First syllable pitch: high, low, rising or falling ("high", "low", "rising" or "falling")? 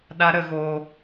high